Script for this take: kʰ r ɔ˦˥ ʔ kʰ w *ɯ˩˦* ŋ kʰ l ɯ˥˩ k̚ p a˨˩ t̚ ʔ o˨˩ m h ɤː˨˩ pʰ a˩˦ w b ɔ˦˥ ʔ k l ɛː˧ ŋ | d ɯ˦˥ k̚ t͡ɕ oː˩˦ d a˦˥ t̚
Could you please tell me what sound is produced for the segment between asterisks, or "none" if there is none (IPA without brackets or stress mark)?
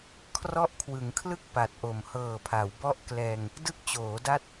ɯ˩˦